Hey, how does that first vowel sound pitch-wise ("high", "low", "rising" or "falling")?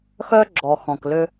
high